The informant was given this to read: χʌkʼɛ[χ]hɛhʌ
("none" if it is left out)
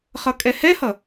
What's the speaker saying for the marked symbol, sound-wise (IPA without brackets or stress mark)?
none